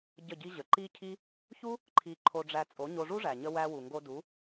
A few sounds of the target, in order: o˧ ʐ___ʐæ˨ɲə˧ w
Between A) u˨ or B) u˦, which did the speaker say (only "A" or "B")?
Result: B